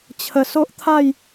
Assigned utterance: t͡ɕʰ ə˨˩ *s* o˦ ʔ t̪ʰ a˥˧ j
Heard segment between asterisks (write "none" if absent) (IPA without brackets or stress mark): s